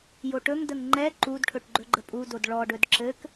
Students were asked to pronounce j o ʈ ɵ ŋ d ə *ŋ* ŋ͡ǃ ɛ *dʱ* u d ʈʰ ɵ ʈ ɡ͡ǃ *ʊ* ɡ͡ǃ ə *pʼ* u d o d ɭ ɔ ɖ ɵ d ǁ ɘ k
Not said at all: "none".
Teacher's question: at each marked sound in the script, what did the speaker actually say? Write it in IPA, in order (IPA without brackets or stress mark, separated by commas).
ŋ, ǃ, ɵ, pʼ